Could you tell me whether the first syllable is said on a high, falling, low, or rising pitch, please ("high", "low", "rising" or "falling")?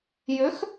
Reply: rising